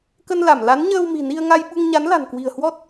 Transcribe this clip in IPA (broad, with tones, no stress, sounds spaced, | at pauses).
k ə˧ n l a˧˩ m l a˨˦ n ɲ əː˧ w m i̤˨˩ n i˧ ə̯ ŋ a˧ j ɓ u˧ ŋ ɲ a˨˦ n l a̤˨˩ n k w i̤˨˩ ə̯ h w ɔ˦˥ t̚